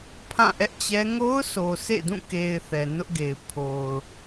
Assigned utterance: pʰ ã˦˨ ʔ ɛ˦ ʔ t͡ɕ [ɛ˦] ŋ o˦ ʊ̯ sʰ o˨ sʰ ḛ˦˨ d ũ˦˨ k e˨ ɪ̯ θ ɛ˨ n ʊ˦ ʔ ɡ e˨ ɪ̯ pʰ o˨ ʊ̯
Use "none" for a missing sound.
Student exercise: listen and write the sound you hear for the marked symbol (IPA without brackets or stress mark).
ɛ˦